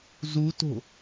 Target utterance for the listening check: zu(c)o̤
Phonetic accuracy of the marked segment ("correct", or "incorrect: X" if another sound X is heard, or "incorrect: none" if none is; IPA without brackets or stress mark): incorrect: t